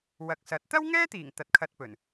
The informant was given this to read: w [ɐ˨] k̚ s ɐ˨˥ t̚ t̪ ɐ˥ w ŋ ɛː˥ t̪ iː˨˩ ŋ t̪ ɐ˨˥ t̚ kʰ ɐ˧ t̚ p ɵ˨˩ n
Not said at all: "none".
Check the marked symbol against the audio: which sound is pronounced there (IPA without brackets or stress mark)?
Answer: ɐ˨